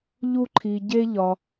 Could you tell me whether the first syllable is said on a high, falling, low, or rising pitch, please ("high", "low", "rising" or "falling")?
high